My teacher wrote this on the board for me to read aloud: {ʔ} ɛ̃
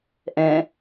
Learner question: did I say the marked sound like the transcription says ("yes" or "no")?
yes